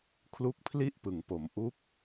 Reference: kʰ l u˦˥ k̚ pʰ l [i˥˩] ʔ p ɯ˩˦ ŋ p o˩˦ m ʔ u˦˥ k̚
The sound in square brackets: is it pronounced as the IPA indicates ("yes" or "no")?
yes